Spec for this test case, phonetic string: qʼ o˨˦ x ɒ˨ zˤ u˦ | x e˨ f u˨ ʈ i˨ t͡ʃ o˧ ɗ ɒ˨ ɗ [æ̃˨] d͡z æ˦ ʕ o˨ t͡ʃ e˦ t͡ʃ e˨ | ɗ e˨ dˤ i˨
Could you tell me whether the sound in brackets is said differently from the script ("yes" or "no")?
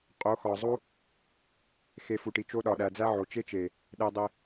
yes